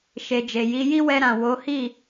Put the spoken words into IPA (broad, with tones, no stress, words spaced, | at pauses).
ʃe˨d͡ʒe˨ji˧ ji˦wɛ˧ɾã˨ wo˨˦hi˦˨